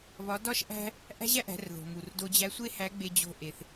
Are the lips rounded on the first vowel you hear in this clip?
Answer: yes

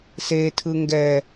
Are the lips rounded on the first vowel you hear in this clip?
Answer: no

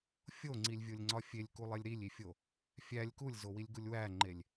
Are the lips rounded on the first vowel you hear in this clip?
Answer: yes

